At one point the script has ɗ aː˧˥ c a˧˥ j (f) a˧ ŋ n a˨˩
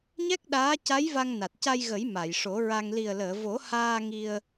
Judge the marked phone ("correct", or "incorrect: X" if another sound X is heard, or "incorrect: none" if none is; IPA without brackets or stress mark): incorrect: v